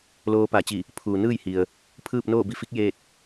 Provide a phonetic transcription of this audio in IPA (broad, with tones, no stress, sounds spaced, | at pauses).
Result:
l oː˧ p a˧˩ t͡ɕ i˧˩ | pʰ uː˩ n ɯː˥˨ j h i˩ ə̯ | pʰ ɯː˥˨ p̚ n oː˥˨ b i˧ f i˧˥ k̚ j eː˥˨ t̚